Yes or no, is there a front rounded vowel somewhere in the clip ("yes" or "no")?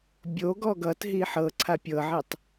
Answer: no